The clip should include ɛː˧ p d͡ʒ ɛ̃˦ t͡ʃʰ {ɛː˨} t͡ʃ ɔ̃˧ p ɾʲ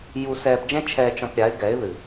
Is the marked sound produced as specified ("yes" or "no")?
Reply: no